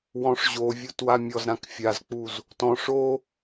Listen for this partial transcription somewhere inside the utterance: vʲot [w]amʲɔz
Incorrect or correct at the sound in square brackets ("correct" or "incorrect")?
correct